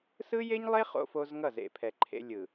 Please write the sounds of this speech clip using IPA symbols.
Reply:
s ɯ˦ j e˦ ɲ lˠ e˦ χ o̰˦ f o˦ z ŋ ʌ˦˨ z ḛ˨ pʰ ɛ˨ ǃʰ ḛ˦ lʲ ɯ˨

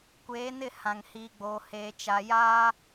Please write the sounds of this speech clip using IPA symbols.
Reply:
kʷ eː˨˦ n ɪ˦˨ h ã˨ ŋ h iː˨ ɡ͡b oː˨ h eː˨ t͡ʃ a˨ j aː˦

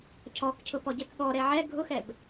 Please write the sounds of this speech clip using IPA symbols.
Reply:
cʰ ɔ k cʰ ʊ p ɔ ɟ ɛ k ɠ ɔ ɾ ɛ ʕ ɛ ɡʱ ʊ x ɛ b

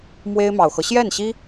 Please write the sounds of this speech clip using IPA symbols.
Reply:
m w e˥ ɪ̯ m ɑ˨˩ ʊ̯ x ɤ˦ ɕ j ɛ˥˩ n ɕ i˥

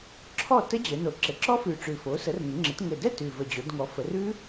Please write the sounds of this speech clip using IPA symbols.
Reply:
ǁʰ ɔ˥˩ t ə˦˥ d͡ʑ ɘ˩˧ n o˨˩ ǁ ɘ˨˩ ǁ ɔ˦˥ f ʉ˨˩ ʈ͡ʂ ʉ˨˩ f o˩˥ s ə˩˥ r ŋ ɘ˩˧ ŋ͡ǁ ɘ˩˧ t ŋ ɘ˨˩ d ɛ˥˩ t ʉ˨˩ v ə˨˩ d͡ʑ o˩˧ d ŋ ɔ˩˧ f ə˩˧ r ʉ˦˥

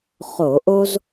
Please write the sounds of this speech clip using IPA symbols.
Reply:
χ o˧˩˧ ʔ o˥ z

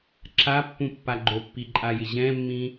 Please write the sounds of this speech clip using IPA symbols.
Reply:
ǁ a pː ũ pː a ɡ͡ǃ o pː i ǃʼ a j ɪ ʑ ɛ̃ mː ĩ

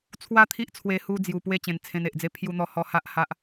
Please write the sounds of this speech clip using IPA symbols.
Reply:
t͡sʰ w a˦ t̪ʰ i˦ ʔ t͡sʰ w e˧ h u˧ d͡z j u˨˩ p w e˧ t͡ɕ ẽ˨˩ n t͡sʰ ẽ˧ n e˨ ʔ d͡z e˦ pʰ j u˧ n̪ ɔ˧ h ɔ˧ h a˦ ʔ h a˦ ʔ

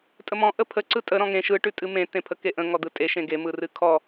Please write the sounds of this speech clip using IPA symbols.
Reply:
tʼ ə m ɔ̃ ʔ ə pʰ ə ǀ ɯ tʼ ə ɾ ɔ̃ ŋ ẽ ʃ ɯ ʈ ʉ tʼ ɨ m ẽ t ẽ pʰ ə k e ʔ ə̃ ŋ ɔ d̪ ɯ tʼ e ʃ ẽ ɡ e m ɯ r ɨ kʰ ɔ

